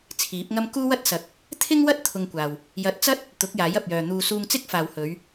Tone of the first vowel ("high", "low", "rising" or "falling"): rising